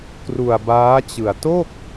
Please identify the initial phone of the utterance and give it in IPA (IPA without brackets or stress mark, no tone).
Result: k